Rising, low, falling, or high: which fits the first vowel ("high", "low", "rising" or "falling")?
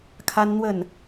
high